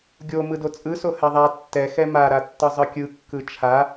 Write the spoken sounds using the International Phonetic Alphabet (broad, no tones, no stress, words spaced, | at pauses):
ɡʲo mɯdot͡sʼɯ sohɛðˤa tːɛ xɛma ɾatːɯzˤɯkʲɯ kːɯt͡ʃʰa